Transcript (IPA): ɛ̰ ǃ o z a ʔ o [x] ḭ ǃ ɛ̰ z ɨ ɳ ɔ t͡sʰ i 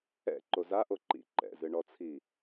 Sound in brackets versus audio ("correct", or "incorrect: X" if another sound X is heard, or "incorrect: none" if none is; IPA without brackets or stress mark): incorrect: ǃ